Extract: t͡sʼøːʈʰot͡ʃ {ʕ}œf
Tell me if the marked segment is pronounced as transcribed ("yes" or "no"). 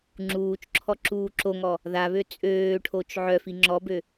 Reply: yes